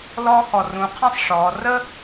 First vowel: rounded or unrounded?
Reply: rounded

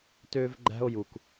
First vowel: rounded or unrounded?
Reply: rounded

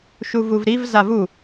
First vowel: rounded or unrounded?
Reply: rounded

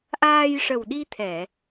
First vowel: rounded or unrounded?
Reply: unrounded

